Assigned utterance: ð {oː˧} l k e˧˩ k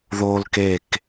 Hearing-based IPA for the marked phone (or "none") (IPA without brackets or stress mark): oː˧